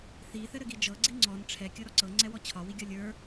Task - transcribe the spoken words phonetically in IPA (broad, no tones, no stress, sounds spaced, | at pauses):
θ i θ ɘ ɾ ɘ ɡ i d͡ʒ ɤ ɡ͡ǀ i ŋ͡ǀ ɔ n ʈ͡ʂʰ ɛ kʲ ɤ ɾ ɔ ǀ ɤ ŋ͡ǀ ɛ w ɔ t͡ɕʰ ɒ w i ɡʲ ɒ lʲ ə˞